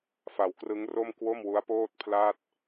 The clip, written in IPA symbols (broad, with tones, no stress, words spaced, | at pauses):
fa˨˩wkrɯ˦˥ŋro˥˩m kwo˥˩mwu˦˥a̯poː˥˩t̚ pʰla˥˩t̚